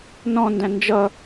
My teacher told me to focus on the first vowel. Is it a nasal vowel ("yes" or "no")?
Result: yes